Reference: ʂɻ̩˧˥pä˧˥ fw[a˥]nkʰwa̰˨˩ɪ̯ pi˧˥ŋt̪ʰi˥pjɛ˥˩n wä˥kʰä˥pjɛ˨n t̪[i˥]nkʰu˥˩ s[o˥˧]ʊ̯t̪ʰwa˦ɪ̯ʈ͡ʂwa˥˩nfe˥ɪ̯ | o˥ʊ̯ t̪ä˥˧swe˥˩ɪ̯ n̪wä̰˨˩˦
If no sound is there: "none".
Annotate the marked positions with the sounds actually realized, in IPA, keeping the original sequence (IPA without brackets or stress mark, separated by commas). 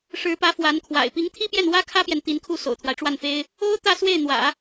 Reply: a˧˥, i˧˥, o̰˨˩